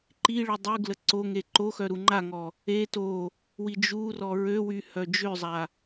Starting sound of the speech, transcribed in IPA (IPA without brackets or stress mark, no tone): ǃ